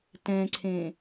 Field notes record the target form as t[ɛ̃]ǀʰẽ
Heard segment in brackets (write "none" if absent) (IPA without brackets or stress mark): ɛ̃